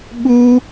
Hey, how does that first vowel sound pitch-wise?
high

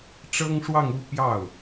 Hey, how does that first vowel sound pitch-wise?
high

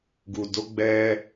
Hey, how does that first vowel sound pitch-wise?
low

